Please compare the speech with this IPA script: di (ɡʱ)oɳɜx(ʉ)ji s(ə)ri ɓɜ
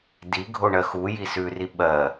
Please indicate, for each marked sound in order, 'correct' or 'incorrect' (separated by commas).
correct, incorrect, incorrect